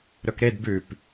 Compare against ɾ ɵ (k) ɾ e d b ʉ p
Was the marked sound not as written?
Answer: no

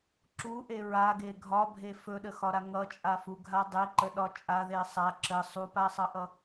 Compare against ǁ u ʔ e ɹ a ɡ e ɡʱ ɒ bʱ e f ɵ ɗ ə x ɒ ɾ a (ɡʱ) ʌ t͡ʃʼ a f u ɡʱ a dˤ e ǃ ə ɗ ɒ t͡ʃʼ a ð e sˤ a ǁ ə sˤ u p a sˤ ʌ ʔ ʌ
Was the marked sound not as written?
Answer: yes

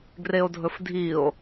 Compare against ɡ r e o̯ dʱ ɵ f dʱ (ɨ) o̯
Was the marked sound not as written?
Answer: yes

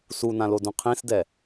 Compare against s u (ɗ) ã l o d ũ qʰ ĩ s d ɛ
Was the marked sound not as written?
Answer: yes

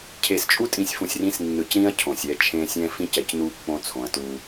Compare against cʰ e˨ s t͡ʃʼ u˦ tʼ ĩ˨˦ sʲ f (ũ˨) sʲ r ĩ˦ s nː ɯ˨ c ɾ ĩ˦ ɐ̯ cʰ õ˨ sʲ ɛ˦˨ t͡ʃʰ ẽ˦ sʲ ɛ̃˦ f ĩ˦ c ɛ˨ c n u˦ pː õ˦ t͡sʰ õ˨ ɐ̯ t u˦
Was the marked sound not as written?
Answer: no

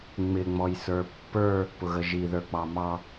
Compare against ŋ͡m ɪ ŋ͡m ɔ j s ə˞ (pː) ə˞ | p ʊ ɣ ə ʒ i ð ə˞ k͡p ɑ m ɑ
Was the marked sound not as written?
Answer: no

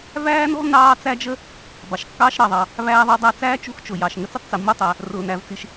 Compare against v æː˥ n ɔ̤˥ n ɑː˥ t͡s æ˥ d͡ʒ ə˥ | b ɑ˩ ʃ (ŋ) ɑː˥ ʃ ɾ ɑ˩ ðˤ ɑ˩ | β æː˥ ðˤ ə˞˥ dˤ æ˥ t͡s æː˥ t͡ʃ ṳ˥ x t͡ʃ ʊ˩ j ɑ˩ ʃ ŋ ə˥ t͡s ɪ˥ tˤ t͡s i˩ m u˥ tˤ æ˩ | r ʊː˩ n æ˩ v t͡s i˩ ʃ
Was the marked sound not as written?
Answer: yes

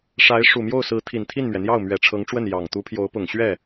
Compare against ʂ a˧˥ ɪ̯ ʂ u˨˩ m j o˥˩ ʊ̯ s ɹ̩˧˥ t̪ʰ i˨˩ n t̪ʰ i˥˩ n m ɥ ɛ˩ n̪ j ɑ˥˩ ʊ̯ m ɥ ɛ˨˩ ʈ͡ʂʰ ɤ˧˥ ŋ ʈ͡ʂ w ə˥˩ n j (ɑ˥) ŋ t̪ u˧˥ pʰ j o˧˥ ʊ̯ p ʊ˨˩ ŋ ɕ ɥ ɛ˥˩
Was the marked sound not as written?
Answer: yes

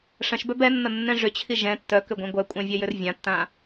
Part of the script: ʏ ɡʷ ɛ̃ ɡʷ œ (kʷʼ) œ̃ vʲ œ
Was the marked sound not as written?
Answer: no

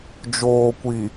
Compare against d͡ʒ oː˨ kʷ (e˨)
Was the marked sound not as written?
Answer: yes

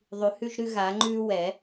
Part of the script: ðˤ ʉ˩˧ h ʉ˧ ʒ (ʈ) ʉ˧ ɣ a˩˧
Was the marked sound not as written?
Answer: yes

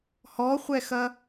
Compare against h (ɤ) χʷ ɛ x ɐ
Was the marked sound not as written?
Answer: yes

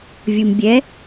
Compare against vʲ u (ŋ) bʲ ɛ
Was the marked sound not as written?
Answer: yes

